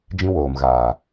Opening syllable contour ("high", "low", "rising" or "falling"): high